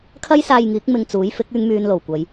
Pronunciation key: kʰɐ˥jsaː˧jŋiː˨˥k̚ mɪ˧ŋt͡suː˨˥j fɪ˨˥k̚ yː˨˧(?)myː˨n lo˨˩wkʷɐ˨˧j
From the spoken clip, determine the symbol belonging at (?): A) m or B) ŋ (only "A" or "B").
B